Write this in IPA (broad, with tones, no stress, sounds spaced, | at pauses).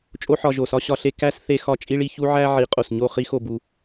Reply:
t͡ʃʼ o˦ ħ ɒ˧ ʒ o˨ s ɒ˦ ɕ ɒ˧ ɬ e˧ k æ˦ s θ e˧ x ɒ˧ t͡ʃʼ i˦ ɭ i˧ ç u˦ ʕ æ˦ ʕ i˨˦ qʼ o˨ s ɲ o˦˨ χ i˦ x o˦˨ b u˧